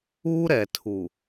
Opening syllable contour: high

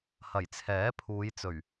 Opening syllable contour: low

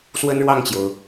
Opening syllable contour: high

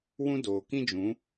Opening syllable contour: high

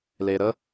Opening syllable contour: low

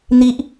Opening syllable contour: high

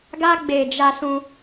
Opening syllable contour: high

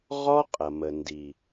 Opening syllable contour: high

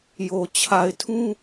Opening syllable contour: low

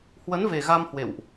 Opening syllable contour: rising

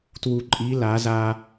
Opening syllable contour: low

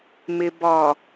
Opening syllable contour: low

